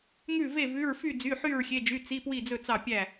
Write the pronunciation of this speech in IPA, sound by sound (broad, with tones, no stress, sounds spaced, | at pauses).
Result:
ŋ ʉ˥˨ v e˥˨ v ʉ˧˥˧ ɹ f y˥˨ d͡z y˧˥˧ ħ y˥˨ ɹ xʲ e˧˥˧ d͡ʒ y˧˥˧ t͡s i˧˥˧ p w i˥˨ d͡z ɵ˥˨ t͡s ɑ˥˨ pʲ æ˥˨